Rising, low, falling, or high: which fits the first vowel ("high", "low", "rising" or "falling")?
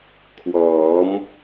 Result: rising